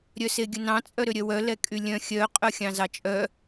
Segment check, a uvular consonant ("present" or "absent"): present